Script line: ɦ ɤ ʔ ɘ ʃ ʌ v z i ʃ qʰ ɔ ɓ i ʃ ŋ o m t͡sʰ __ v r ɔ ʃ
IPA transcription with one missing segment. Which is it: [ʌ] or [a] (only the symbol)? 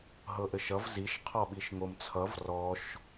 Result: ʌ